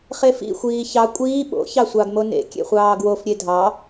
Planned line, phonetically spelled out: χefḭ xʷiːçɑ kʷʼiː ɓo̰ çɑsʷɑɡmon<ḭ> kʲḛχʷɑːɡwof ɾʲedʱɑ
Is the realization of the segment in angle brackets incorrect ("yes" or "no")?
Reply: yes